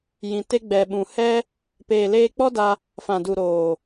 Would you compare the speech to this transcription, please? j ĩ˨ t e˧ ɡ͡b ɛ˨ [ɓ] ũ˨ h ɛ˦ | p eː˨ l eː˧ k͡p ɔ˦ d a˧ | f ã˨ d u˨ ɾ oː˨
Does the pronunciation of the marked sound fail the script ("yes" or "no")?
no